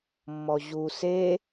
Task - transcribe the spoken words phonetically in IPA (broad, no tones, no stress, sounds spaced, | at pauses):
mː ɔ ʑ u s e